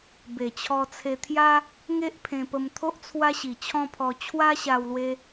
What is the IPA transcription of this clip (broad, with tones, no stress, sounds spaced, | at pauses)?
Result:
b e˨˩ t͡ɕʰ ɔ˧ t͡sʰ e˧ t̪ʰ j a˦ | ŋ e˦ ʔ pʰ ẽ˧ p ə˧ m t̪ʰ o˦ ʔ t͡sʰ w a˦ ɕ i˨˩ t͡ɕʰ ɔ̃˦ pʰ ɔ˧ t͡ɕʰ w a˦ ɕ a˧ w l w e˧